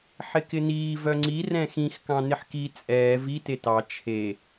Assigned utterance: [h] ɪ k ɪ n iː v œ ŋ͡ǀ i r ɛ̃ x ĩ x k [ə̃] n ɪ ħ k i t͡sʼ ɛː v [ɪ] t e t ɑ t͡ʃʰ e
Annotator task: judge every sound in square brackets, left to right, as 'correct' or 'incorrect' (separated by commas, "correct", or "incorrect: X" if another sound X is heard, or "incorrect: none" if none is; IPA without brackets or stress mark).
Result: incorrect: ħ, incorrect: ɑ̃, incorrect: i